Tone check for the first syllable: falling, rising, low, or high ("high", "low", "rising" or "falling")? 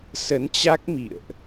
rising